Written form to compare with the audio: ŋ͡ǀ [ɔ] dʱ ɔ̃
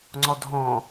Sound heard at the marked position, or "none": ɔ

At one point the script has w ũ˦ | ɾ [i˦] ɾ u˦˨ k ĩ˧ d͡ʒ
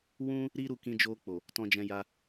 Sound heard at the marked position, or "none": i˦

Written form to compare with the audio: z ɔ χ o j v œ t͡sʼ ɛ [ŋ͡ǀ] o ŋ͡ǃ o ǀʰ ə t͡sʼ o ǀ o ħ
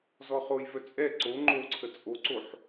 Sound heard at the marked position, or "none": ǀ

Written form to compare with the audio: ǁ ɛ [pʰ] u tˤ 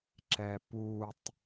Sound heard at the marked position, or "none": p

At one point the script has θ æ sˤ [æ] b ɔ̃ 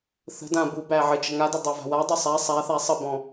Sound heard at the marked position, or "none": ə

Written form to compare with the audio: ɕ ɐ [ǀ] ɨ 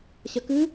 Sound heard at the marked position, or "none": k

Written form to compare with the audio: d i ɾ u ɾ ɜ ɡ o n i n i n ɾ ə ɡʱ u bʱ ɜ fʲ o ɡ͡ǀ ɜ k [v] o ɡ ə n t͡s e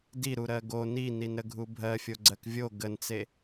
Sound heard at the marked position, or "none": vʲ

